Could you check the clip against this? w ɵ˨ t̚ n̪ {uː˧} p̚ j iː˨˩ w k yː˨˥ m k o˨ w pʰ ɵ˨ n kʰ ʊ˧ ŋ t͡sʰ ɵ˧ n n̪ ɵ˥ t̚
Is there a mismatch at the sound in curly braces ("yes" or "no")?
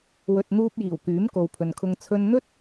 no